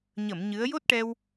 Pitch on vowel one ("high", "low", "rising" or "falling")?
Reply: low